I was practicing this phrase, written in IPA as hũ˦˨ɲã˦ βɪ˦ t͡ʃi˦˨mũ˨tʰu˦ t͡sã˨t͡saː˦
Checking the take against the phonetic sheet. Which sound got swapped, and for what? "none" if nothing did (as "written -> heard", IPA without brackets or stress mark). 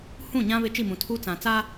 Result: none